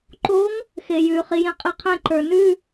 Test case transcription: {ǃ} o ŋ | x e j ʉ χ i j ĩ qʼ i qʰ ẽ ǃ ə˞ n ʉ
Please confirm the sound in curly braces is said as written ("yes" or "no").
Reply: yes